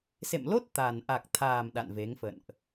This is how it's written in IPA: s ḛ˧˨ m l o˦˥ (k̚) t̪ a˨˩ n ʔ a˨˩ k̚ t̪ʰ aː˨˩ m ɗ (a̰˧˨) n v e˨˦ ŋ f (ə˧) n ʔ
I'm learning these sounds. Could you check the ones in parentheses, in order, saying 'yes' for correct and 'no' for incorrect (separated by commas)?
no, yes, no